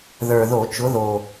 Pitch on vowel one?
low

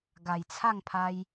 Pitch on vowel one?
low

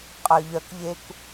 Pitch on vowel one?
low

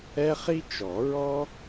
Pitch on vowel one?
high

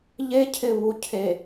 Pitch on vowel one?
high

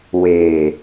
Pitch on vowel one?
low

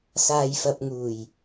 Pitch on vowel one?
low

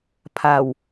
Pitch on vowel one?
low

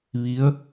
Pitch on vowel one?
rising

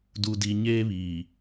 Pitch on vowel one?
low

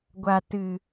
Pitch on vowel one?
low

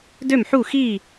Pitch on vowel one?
falling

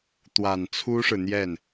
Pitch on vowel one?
low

